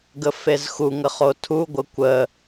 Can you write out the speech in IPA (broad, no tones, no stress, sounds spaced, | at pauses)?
ɡ ə f e z x u ŋ ə χ o tʰ u ɡʷ ə kʷ ə